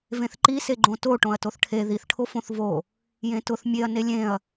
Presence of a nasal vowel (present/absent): present